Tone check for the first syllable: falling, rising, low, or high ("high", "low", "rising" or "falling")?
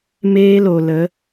high